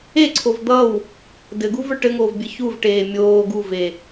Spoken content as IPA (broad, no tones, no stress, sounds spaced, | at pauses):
e ǀʰ o v d̪ ʌ w | d ɘ ɡ u v ə˞ ʈ ɘ ŋ oː v bʲ ɘ ç u v ʈ eː mʲ oː ɡ u v e